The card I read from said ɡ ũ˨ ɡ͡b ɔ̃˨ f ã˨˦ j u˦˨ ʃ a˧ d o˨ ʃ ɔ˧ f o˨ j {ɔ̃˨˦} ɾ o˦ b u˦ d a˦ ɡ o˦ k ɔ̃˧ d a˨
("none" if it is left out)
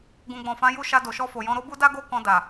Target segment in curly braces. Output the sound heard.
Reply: ɔ̃˨˦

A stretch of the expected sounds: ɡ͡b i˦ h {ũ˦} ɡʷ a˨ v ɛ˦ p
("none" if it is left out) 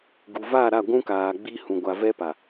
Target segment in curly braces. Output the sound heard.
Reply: ũ˨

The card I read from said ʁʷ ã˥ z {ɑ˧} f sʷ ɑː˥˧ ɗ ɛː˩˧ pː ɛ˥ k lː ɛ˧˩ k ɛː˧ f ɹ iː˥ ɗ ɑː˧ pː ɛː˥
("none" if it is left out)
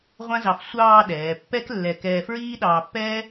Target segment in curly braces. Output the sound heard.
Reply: ɑ˧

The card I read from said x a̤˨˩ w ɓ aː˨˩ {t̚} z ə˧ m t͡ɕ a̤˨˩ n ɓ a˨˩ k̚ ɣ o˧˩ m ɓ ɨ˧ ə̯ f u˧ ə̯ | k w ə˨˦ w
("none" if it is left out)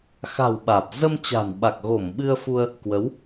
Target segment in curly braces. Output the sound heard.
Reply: p̚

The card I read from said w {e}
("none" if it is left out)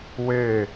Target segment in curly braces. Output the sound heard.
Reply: e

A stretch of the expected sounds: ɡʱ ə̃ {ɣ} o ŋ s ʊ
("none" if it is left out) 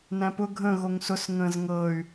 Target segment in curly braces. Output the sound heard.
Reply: ɣ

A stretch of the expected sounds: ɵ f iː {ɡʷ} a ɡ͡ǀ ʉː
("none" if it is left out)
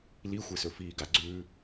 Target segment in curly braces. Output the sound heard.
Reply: ɡ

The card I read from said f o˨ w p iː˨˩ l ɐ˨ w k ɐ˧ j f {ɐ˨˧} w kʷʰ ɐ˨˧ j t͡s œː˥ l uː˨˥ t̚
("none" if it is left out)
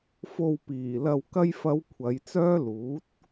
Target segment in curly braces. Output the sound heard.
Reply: ɐ˨˧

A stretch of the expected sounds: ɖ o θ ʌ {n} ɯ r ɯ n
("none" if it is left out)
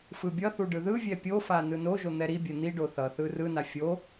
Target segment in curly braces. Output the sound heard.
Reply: θ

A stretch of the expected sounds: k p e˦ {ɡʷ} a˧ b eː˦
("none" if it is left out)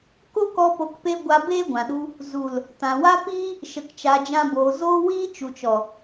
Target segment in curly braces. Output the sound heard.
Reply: ɡʷ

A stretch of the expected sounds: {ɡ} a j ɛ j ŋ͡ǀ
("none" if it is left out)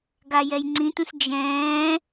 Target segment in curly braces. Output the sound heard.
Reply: ɡ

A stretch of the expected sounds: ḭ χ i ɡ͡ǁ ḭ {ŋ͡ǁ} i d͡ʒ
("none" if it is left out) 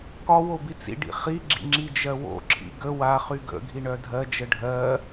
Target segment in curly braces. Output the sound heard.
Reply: ŋ͡ǁ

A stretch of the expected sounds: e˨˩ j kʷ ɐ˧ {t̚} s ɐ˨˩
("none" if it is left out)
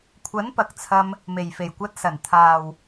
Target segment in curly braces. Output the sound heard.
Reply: t̚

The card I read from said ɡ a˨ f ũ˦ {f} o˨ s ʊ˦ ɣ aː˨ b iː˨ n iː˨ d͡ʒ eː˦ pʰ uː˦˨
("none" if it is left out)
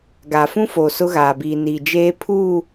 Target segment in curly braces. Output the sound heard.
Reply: f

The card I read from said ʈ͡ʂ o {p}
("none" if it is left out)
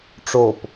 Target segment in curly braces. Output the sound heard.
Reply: p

